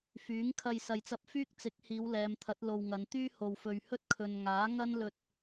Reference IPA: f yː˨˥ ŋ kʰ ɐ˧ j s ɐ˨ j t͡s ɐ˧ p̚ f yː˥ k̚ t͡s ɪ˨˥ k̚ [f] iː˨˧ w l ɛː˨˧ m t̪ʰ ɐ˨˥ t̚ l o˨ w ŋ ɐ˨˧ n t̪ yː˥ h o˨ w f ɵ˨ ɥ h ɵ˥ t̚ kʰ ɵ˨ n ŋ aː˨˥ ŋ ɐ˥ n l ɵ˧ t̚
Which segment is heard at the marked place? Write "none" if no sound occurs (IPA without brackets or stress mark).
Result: h